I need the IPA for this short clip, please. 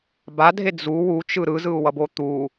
b a dʱ e d͡z u w u t͡ʃ ɯ ɾ ɯ z ɯ u̯ w ʌ b o t̪ u

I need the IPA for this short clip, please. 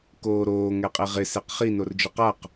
k oː ɾ oː ŋ ɛ qʼ e ʁ ɪ s e q χ i n o r d͡ʒ ʊ q a q

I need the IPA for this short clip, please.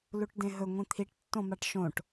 l u ʈ d ẽ ɦ ɵ ŋʷ ĩ t̪ʰ i ʈ tː õ m a ʈ ʃ õ ʈ

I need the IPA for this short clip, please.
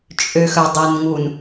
t͡ʃʼ ø x œ dˤ ɛ n ŋ u n

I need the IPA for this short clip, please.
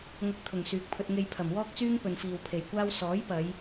ŋ ɐ˧ k̚ t̪ʰ ʊ˨˩ ŋ s yː˨ k̚ pʰ ɵ˧ t̚ ŋ e˧ j pʰ ɐ˨˩ m w ɔː˥ k̚ t͡s yː˥ ŋ p ɵ˨ n f iː˨ w pʰ e˨˩ j kʷ aː˥ w s ɔː˨˥ j p ɐ˨˧ j

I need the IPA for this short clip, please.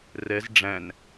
r ɛ z ɖ͡ʐ æ̃ n

